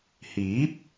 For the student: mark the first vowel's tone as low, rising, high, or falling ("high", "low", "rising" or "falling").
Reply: rising